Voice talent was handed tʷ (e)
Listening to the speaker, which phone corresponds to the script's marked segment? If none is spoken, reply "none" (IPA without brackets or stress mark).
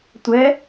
ɛ